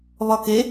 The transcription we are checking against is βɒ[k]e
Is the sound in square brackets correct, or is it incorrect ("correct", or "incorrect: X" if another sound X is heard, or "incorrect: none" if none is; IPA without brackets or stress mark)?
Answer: correct